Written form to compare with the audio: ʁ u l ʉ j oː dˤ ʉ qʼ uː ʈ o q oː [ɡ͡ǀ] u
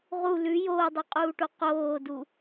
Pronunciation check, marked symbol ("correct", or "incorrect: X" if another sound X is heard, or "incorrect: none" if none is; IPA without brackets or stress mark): incorrect: d